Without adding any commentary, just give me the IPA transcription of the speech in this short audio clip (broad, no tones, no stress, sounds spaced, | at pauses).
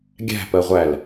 ɡʲ æ̤ p ɜ ʁʷ æ l